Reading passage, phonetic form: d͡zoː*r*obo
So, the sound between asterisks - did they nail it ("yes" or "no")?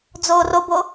yes